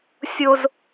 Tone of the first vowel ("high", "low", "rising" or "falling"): high